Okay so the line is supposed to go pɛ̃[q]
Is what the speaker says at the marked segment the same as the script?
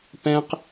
yes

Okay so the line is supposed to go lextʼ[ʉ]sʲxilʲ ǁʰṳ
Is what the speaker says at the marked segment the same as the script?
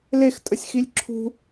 no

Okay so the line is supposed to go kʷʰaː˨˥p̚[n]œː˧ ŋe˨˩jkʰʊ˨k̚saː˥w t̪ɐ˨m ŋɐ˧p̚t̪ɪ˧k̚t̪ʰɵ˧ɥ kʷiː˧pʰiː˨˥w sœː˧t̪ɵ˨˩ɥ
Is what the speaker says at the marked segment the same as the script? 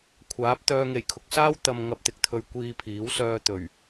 no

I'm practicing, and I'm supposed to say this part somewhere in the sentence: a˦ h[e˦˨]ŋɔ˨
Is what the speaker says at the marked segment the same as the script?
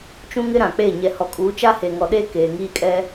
no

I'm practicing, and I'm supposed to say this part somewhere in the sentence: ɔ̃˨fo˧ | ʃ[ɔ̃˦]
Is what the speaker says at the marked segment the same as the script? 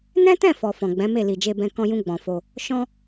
yes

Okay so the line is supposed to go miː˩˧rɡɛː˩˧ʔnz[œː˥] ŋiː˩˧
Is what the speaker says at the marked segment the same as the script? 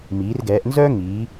yes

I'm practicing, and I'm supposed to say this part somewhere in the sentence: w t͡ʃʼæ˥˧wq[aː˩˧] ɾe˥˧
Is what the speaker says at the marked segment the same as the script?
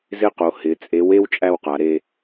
no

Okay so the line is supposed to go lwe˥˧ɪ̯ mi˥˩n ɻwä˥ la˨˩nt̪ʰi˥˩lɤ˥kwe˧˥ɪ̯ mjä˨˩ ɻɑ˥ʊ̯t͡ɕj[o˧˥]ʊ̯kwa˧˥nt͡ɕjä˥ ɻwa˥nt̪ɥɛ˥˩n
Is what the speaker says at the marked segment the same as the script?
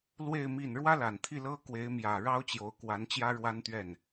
yes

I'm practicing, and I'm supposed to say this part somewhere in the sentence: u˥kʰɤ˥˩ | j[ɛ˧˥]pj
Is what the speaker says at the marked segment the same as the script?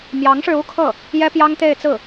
no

